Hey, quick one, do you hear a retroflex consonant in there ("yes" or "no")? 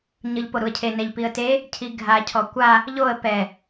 no